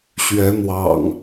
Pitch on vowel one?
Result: rising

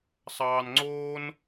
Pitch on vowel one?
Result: low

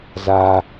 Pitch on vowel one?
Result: low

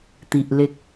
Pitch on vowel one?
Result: low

